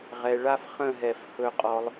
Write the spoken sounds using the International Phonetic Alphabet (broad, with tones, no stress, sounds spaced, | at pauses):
ʁ ɛ˧ ɭ a˥ f χ ə̃˥˧ ɦ ɛ˧˩ f x ɵ˧ qʼ ɔ˧ lˠ